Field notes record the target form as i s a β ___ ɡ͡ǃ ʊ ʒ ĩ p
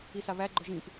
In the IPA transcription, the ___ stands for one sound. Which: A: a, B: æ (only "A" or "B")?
B